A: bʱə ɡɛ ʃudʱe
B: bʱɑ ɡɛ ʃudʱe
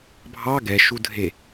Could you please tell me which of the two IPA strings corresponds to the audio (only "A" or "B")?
B